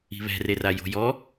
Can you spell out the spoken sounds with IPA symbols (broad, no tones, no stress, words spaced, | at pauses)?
i̤βɛ̤rera jo̤jɔ